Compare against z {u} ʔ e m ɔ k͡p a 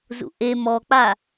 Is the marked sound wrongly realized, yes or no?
yes